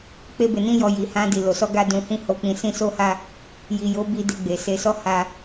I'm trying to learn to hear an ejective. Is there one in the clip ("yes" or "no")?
no